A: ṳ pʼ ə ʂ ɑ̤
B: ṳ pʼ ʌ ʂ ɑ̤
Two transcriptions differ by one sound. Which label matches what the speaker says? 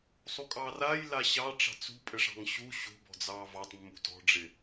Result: A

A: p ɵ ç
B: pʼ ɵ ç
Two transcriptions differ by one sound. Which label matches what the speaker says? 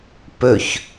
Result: A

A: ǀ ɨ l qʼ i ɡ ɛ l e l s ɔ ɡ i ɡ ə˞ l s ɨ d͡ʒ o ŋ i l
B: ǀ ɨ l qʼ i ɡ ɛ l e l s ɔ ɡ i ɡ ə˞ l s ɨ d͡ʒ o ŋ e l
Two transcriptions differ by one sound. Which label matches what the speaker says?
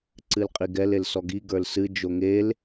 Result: B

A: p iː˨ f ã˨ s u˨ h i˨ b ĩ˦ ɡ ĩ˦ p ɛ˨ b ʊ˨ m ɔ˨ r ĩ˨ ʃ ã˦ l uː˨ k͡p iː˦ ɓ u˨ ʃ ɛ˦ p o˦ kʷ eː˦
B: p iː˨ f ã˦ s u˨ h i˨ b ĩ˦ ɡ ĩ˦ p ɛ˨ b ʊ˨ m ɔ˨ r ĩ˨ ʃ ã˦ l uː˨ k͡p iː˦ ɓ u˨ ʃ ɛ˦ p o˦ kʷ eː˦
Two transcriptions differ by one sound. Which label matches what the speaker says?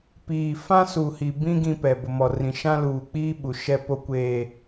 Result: B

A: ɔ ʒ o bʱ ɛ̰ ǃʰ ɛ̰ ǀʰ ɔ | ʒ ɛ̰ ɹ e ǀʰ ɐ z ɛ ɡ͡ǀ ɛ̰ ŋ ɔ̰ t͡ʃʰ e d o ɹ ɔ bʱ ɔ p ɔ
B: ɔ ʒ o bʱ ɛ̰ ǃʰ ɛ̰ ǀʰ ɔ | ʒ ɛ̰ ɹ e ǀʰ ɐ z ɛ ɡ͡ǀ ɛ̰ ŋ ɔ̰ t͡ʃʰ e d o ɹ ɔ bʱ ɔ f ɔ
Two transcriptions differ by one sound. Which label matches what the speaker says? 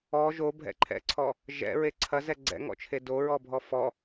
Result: B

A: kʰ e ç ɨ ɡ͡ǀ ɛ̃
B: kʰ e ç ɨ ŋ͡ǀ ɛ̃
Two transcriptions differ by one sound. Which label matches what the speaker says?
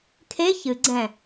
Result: A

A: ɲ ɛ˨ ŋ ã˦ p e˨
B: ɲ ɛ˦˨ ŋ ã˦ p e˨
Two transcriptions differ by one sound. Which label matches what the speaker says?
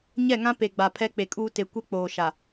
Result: B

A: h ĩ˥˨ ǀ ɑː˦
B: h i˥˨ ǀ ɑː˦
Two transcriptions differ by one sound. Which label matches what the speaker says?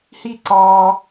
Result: B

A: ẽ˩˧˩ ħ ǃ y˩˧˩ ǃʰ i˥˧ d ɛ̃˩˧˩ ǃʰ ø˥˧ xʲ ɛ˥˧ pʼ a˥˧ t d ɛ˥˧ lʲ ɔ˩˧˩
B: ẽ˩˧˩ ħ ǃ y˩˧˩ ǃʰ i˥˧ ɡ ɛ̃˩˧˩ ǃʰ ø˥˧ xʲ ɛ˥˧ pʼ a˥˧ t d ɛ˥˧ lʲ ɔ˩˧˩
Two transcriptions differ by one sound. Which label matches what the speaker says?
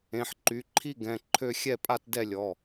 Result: B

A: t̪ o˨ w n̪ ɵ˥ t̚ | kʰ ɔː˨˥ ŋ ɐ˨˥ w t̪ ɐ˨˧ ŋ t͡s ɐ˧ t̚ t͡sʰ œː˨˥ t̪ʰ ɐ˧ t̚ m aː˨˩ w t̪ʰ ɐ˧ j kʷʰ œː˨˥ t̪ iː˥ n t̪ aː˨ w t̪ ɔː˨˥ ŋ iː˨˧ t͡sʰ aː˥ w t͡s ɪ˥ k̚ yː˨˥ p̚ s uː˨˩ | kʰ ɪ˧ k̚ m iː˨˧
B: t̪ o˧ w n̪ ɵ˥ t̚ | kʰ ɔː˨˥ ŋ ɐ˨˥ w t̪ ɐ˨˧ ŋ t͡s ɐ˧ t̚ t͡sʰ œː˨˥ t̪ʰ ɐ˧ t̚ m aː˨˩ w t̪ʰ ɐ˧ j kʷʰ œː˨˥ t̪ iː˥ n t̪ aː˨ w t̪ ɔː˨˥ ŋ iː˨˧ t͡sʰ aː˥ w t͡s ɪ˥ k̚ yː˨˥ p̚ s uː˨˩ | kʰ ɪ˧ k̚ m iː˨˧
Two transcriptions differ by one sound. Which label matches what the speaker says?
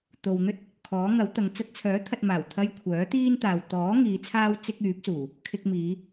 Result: A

